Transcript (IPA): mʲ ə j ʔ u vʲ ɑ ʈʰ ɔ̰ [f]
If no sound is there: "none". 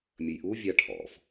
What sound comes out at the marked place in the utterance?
f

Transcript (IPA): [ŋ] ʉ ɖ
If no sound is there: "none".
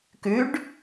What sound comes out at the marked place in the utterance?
k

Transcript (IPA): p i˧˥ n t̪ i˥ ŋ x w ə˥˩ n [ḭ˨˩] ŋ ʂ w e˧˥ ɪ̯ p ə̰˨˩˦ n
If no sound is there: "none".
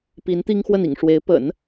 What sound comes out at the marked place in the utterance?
ḭ˨˩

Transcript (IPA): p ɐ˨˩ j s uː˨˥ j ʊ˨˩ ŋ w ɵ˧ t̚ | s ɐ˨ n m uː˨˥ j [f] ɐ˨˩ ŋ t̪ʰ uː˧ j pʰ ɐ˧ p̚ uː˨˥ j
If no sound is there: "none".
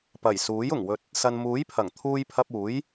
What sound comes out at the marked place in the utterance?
pʰ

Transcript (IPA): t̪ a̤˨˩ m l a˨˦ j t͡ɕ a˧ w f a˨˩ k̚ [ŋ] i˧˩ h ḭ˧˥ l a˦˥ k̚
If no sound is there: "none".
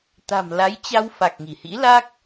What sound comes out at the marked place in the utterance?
ŋ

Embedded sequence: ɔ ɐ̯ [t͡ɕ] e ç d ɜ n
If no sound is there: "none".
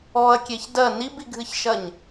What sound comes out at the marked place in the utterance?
kʲ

